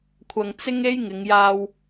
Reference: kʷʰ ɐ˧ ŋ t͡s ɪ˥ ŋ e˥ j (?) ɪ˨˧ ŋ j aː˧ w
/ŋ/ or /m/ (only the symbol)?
ŋ